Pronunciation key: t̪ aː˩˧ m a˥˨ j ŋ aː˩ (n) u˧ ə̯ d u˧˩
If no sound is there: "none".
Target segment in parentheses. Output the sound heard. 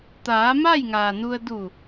n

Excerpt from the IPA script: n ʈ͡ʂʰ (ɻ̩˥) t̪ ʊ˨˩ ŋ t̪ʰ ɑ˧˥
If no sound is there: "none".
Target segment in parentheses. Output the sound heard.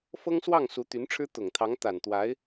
ɻ̩˥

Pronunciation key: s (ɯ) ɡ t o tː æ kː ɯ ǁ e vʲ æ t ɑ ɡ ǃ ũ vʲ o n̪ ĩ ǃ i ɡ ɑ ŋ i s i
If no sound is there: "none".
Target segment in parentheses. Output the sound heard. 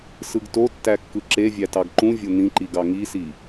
ɯ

